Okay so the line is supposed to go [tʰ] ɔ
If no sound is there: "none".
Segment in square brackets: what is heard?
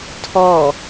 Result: tʰ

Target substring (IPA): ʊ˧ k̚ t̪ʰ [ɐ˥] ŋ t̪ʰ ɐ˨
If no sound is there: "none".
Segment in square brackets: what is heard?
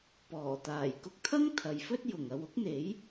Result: ɐ˥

